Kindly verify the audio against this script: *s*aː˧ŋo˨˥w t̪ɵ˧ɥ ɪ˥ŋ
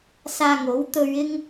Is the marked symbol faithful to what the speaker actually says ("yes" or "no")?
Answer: yes